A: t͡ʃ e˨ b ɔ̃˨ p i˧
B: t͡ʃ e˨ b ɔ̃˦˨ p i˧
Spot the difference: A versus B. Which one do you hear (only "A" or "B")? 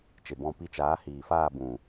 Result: B